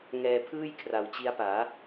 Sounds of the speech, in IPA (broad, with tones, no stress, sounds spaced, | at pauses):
ŋ ɛː˧ pʰ ɯː˥˩ j kʰ r a˨˩ w t͡ɕ i˦˥ a̯ p aː˩˦